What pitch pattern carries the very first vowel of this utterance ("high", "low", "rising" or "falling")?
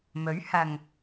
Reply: rising